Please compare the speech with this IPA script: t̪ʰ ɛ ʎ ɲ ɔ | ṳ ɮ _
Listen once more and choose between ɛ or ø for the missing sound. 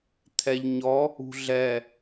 ɛ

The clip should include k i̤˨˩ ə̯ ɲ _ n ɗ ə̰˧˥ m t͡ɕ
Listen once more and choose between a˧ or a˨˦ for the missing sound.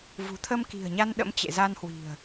a˧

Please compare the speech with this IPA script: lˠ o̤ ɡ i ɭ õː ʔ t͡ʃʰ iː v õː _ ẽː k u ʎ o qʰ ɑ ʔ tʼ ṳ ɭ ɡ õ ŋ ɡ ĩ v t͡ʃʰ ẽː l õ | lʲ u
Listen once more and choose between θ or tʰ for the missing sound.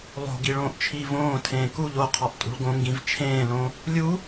tʰ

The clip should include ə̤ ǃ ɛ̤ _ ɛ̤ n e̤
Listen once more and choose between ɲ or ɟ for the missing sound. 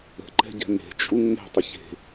ɟ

